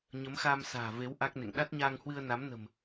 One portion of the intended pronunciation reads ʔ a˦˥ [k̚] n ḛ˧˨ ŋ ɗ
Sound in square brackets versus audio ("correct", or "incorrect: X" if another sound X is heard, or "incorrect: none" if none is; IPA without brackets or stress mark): correct